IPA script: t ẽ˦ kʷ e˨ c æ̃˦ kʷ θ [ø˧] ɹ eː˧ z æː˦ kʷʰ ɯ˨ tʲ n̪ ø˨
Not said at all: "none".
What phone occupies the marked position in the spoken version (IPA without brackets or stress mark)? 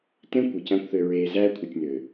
ø˧